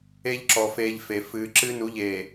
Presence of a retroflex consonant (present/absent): absent